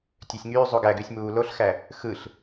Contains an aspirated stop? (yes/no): no